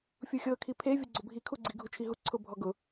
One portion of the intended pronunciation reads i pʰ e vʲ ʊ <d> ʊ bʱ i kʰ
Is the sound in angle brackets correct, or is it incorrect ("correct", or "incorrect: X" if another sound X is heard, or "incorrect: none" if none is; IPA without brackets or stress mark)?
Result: incorrect: ɡ͡ǀ